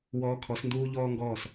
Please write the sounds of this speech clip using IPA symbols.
w ɔː˧ kʰ ɔ˨˦ s n d uː˦ ʎ ɔː˦ ŋ ɡ ɔː˦˨ s

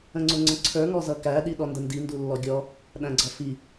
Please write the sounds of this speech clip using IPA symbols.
ə̃ ŋ͡ǀ ʊ ŋ͡ǀ ə̃ ǀʰ ə˞ ŋ ɔ z ʌ k æ ɗ i ɗ ɔ n d ə n d i n d u lː ɔ ɡʲ ɔ | ɗ æ̃ ɡ͡ǀ ʌ f i

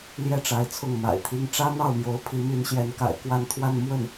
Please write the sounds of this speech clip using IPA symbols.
l j ɛ˥˩ ʈ͡ʂ a˧˥ ɪ̯ t͡sʰ ʊ˥˩ ŋ m a̰˨˩ ɪ̯ t̪ʰ i˥ ŋ ʈ͡ʂ ä˥ n̪ ɑ˥˩ ʊ̯ m j o˧˥ ʊ̯ pʰ i˧˥ m y˧˥ n ɕ j ɛ˧˥ n k a̰˨˩ ɪ̯ k w a˥˧ n t̪ʰ w a˥˧ n m w ə˥˩ n

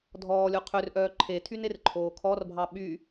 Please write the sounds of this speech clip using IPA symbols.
dʱ ɔː lʲ o qʰ ø r ʔ œː ǃʰ e tʰ y n e r ǃʰ oː kʰ ɔ r bʱ ɑ ɓ y

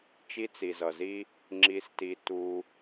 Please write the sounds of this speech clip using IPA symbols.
t͡ʃ i˦ t͡s i˨ z ʌ˨ z i˦ | ŋ͡ǁ i˦ s t i˦ t u˦

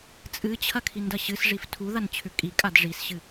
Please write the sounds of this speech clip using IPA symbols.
t͡sʼ ɨ t͡ɕʰ ɐ kʰ i n d ɐ ɕ ɨ s ʐ i f tʰ u ð a n t͡ɕʰ ʉ kʼ i kʼ a d ʐ i s ɕ ɨ

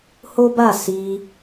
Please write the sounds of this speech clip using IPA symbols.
h o˦ b a˦˨ s i˧

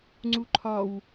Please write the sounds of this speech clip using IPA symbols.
ŋ͡ǀ u ǃʰ ɒ w

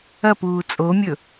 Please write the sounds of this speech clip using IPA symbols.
ɐ p uː t͡sʼ o mʲ ɵ

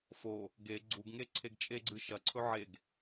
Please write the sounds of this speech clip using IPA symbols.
f o | ɡ e ɡ͡ǀ u ɡ ŋ e ǀʰ e ɡ t͡ʃʼ e ɡ͡ǀ ɨ ʃ ɐ ǀʰ ɵ ʕ e ɡ

